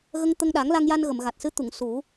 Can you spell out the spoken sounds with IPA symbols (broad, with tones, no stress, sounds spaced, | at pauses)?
ɣ ə˧ ŋ t̪ ə˧ ŋ ɗ a˨˩˦ ŋ l a˧ ŋ j a˧ n ɣ ə˨˩˨ m ɣ a˨˩ t̚ s ɨ˧˥ t̪ u˨˩˨ ŋ s u˨˩˦